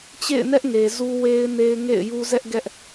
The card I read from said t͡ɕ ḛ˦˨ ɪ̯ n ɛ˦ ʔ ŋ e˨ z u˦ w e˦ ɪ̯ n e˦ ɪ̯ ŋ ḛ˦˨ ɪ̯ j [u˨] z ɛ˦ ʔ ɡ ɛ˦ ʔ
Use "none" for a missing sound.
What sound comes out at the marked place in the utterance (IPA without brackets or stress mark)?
u˦